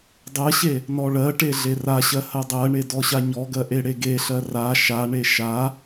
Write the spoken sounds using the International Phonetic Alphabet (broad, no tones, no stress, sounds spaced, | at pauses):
dˤ ɜ ɕ e | n ɔ ɭ ɜ ʈ e ɮ e r a ɕ ɜ h ɜ dˤ ɜ ɳ e d ɔ ɕ a ɲ ɔ ɡ ɜ ʔ e ɽ e ɡ e ɬ ɜ r a ʃ a ɳ e ʃ a